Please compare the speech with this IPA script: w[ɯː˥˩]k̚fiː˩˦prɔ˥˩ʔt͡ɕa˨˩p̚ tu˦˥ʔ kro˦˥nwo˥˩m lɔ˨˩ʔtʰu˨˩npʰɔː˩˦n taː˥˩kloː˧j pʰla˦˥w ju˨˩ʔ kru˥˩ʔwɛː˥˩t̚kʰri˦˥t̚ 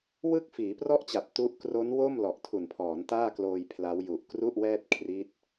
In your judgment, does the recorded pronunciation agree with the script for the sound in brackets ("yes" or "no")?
no